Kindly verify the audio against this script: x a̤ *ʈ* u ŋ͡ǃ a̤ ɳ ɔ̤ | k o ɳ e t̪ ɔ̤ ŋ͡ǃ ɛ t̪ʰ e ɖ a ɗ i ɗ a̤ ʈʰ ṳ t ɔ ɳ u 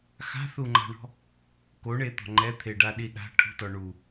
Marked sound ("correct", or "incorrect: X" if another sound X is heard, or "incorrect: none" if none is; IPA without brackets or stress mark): incorrect: θ